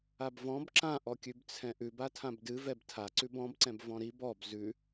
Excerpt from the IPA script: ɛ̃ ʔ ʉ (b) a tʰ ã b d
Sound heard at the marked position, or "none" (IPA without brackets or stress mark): b